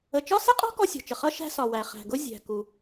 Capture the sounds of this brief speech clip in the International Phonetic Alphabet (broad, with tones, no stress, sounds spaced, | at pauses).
ə˩ t͡ʃ ɒ˥ s ɪ˥ qʼ ɔ̤˥ k ɔ˥ sʲ ɔ̤˩ t͡ʃ ə˩ χ ʌ˥ ʃ æ̤˥ s ɒ˩ w æ˩ χ æ̤˩ ɡ ʊ˥ zʲ æ̤˩ k u˩